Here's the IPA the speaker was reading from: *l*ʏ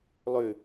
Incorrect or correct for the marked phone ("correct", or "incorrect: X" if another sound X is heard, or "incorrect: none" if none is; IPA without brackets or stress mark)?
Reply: incorrect: lˠ